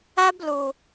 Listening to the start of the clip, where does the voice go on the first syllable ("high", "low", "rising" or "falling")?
high